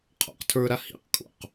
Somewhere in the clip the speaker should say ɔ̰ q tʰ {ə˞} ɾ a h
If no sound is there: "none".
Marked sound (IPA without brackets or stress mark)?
ə˞